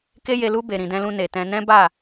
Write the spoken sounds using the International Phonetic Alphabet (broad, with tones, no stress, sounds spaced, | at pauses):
k e˦ j e˧ l u˦ b e˧ ɾ ĩ˧ d ɛ̃˦ l ũ˦ n e˧ t ɛ̃˦ n ɛ̃˦ b a˦˨